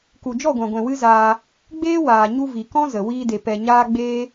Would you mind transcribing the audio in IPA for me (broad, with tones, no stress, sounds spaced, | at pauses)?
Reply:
k u˨ d͡ʒ ɔ˦˨ ɡʷ ã˨ ɡʷ ɛ̃˨ w ɨ˦ z aː˧ | ɡ͡b eː˦ w aː˨ ɲ u˧ v i˨ k ɔ̃˦ z ə˨ w iː˧ d e˨ p ɛ˨ ɲ aː˧ ɡ͡b eː˦